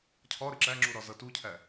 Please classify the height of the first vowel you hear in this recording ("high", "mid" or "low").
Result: low